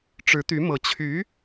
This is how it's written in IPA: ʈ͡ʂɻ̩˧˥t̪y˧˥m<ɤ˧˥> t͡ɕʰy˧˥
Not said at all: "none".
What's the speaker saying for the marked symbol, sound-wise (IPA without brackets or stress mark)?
ɤ˧˥